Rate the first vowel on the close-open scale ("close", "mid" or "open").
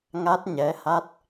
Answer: open